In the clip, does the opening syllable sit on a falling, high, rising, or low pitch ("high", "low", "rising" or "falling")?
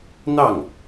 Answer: falling